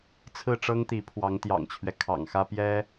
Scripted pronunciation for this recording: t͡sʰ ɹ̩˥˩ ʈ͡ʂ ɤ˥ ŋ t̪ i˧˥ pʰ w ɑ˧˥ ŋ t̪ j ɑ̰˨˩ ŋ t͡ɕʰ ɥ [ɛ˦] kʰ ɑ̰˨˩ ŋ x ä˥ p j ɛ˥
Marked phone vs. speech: correct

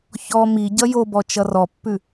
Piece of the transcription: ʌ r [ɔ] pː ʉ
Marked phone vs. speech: correct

